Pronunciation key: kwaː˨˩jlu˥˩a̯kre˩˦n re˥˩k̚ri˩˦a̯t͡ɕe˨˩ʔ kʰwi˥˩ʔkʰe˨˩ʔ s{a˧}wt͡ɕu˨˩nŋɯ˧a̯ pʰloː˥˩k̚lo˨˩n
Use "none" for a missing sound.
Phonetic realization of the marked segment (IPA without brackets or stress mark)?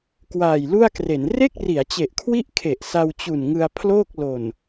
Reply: a˧